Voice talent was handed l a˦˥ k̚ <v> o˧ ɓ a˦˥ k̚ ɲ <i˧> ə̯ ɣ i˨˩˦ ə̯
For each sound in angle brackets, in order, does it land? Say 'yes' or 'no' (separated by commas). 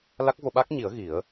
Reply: yes, no